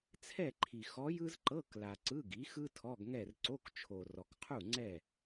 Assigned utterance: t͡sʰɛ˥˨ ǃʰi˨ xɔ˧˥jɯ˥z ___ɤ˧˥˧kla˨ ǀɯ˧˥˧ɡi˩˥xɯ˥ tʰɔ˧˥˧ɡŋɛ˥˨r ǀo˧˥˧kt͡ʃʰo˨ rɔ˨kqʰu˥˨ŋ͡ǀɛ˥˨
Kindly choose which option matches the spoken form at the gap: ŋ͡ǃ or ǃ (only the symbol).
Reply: ǃ